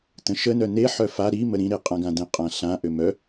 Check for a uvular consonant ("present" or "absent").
present